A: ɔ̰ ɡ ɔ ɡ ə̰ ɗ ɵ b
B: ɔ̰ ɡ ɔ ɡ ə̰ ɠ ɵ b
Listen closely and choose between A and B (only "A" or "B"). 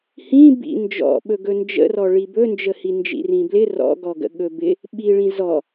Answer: B